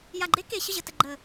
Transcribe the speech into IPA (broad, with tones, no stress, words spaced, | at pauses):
ja˨˩ɡ͡ǃe˧˥ ke˨˩ɕə˥˩ʑə˨˩ tə˨˩ ɡ͡ǃə˨˩